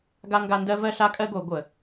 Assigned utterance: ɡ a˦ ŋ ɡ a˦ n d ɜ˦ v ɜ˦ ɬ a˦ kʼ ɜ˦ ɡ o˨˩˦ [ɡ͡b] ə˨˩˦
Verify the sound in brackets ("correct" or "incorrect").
incorrect